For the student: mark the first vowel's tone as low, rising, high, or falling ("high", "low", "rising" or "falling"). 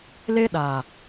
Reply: high